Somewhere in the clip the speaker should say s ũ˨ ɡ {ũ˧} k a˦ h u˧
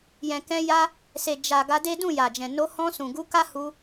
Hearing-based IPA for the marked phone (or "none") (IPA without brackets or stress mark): u˧